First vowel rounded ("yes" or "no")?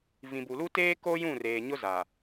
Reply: no